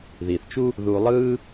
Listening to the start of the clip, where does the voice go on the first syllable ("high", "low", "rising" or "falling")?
low